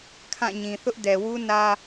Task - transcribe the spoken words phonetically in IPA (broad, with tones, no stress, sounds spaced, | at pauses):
kʰ ã˦˨ ɲ ĩ˨ θ ʊ˦ ʔ d ɛ˨ w u˦ n ä˦